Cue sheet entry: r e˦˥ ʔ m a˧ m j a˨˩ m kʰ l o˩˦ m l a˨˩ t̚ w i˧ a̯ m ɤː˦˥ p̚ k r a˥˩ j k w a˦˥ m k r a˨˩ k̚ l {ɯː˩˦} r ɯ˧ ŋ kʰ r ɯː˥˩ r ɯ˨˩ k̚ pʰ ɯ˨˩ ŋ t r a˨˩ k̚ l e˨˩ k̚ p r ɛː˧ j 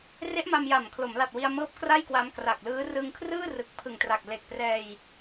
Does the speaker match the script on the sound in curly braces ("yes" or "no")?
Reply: no